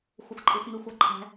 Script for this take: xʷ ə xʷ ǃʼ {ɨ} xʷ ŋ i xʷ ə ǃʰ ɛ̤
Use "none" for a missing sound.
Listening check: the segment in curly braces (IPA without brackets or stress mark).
i